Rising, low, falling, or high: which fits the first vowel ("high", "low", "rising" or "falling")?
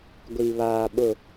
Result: low